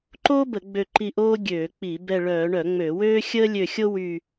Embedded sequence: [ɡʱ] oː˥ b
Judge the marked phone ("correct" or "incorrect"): incorrect